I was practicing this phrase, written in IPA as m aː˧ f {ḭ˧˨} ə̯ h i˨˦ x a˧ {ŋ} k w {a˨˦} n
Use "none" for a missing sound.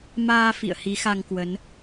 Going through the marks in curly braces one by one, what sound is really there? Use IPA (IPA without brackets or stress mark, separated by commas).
ḭ˧˨, ŋ, ə˨˦